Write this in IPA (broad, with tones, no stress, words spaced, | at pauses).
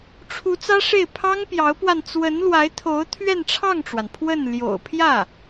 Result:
ʈ͡ʂʰu˧˥ t͡sä˥ʂe˥˩ɪ̯ pʰɑ˥ŋpjɑ˧˥ʊ̯pwa˧n t͡swə˧˥nlwa˧˥ɪ̯t̪ʰo˧˥ʊ̯ t̪ʰɥɛ˥˧nʈ͡ʂʰɑ˥˩ŋʈ͡ʂwa˩n pʰwə˥˩n ljo̰˨˩ʊ̯pʰjä˥˩